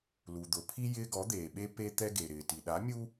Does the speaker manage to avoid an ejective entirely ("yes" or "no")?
yes